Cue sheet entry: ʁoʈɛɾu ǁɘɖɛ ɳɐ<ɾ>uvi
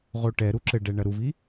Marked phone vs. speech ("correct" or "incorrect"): correct